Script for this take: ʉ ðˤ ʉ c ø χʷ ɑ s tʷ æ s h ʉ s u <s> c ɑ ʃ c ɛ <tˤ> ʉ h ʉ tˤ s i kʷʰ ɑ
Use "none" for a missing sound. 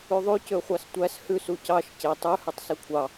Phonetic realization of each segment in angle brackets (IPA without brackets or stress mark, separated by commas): none, tˤ